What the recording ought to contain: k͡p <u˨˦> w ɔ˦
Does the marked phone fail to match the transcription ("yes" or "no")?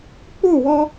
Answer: yes